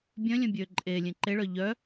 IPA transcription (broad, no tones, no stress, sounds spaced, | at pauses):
bʲ œ̃ lʲ œ̃ bʲ ø ǃʼ e lʲ ẽ ǃ e ɭ œ ʎ œ